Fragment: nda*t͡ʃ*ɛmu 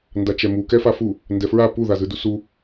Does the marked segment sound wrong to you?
no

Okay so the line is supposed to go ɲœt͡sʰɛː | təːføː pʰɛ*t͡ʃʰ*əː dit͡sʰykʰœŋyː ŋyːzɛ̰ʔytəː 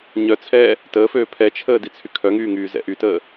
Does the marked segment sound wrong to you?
no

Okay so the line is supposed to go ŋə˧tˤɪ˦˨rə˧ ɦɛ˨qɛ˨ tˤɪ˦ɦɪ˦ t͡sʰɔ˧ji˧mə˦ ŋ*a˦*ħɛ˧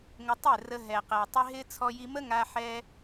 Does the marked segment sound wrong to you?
yes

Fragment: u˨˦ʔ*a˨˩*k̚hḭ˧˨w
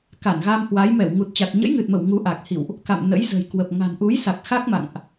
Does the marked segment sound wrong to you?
no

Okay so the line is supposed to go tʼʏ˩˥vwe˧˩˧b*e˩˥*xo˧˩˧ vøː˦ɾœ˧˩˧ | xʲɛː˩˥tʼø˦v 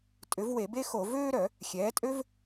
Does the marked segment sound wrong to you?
yes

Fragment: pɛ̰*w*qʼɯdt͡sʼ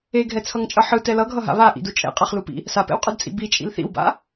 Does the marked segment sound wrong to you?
no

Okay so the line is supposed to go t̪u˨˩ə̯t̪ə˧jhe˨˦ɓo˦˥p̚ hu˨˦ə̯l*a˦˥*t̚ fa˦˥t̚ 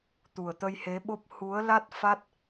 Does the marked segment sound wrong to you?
no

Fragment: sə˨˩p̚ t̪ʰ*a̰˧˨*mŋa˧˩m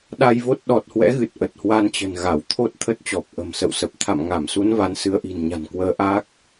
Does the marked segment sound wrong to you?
no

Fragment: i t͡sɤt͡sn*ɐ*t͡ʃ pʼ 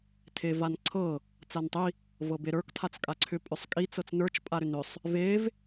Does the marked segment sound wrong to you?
yes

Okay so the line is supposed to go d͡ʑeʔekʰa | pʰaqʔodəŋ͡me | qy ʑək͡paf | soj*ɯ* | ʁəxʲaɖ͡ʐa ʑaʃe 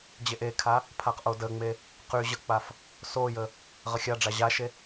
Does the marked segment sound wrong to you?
yes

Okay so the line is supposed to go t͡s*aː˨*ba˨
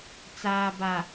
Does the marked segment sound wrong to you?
no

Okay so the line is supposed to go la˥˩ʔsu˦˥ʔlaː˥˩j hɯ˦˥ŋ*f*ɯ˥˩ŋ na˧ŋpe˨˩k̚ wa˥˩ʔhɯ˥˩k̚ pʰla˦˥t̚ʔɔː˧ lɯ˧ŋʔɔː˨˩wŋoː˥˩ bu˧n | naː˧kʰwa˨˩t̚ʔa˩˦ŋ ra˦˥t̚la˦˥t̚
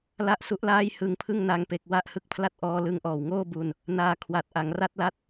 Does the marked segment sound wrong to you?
yes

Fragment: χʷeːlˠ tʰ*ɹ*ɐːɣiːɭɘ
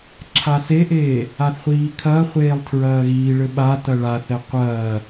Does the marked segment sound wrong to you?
no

